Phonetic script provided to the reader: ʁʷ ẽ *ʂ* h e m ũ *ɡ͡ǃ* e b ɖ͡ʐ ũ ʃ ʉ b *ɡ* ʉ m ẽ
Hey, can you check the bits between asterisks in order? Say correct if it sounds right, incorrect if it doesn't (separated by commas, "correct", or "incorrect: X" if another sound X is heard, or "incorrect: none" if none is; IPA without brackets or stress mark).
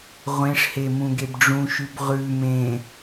correct, incorrect: ɡ, incorrect: ʁ